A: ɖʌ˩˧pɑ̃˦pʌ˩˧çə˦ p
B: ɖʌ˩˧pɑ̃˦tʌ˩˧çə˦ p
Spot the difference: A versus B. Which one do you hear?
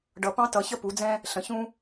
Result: B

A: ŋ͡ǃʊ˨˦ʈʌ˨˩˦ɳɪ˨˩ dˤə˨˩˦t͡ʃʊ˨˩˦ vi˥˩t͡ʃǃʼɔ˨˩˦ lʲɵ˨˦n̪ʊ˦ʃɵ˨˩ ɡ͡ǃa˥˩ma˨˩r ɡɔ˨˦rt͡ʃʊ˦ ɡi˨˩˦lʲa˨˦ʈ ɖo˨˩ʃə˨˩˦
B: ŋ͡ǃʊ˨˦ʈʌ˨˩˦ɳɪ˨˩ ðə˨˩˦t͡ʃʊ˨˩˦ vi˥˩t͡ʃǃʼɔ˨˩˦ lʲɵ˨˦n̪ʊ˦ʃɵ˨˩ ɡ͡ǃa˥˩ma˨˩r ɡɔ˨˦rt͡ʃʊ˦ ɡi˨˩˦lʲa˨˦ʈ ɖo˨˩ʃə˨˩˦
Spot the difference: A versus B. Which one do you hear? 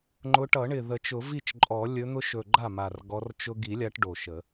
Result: B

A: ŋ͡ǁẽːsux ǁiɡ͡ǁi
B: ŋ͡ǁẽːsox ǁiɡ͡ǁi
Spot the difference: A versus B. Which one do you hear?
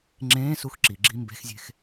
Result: A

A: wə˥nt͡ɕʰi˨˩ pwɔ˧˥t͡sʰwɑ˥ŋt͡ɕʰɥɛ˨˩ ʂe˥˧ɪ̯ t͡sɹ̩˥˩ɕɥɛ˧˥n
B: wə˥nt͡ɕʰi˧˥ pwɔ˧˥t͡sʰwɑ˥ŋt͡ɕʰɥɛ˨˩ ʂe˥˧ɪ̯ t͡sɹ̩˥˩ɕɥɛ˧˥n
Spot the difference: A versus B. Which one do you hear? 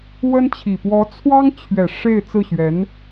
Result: A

